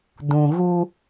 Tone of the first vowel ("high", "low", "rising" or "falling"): low